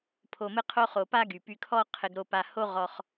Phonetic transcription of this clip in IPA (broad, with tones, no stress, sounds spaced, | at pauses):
pʰ o˧ m ɘ˥ qʰ o˥ χ o˧ p a˥ ɡ y˩ p y˧ kʰ ɔ˥ qʰ ɘ˧ ɡ ɾ o˧ p a˧ h o˥ ʁ ɔ˧ χ